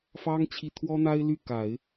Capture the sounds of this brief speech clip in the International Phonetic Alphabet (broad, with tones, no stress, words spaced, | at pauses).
fɑ˥ŋ t͡ɕʰi˥˩ t̪ʰwɔ˥n̪a˥ɪ̯ ly˥˩ ka˨˩˦ɪ̯